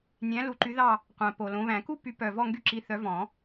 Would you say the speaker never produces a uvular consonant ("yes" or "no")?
no